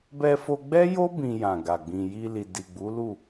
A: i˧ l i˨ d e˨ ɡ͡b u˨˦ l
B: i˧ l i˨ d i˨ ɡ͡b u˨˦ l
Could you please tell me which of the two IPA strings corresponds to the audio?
B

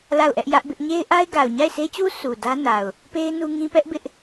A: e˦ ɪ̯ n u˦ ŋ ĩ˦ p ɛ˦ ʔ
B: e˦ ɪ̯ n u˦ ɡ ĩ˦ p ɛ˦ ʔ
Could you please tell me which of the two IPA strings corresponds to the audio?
A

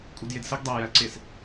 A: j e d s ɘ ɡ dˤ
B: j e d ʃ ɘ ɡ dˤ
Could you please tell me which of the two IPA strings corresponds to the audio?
A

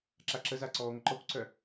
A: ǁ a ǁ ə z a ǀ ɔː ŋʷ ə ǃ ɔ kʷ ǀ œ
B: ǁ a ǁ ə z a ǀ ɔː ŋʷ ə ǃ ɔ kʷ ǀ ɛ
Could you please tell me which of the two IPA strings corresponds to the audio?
A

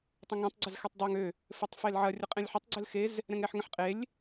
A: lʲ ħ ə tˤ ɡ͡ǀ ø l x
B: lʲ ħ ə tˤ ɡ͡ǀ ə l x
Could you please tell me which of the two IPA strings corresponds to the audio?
A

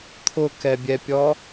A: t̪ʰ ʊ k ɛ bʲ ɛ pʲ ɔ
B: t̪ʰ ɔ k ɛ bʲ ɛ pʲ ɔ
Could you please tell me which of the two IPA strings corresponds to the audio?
A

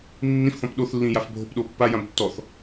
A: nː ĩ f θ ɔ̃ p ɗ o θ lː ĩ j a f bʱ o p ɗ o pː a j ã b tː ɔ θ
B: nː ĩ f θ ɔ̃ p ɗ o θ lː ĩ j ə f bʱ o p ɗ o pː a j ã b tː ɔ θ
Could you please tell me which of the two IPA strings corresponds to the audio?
A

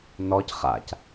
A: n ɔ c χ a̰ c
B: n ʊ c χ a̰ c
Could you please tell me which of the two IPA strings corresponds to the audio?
A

